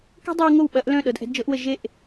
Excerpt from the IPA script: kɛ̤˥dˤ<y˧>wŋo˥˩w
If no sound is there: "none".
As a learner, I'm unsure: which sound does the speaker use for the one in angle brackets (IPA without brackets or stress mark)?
y˧